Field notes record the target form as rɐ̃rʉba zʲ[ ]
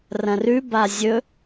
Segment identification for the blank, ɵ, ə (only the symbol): ɵ